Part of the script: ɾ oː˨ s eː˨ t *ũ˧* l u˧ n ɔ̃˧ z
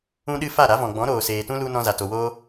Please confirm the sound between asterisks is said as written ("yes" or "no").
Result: no